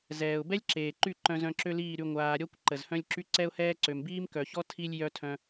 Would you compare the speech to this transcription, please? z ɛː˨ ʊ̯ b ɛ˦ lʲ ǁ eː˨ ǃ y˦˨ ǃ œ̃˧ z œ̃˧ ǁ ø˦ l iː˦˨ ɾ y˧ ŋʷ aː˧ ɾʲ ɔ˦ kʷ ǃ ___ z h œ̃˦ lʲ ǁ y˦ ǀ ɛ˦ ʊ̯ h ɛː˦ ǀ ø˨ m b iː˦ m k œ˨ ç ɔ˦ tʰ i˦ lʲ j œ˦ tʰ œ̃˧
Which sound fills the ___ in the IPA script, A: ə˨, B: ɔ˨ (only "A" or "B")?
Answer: A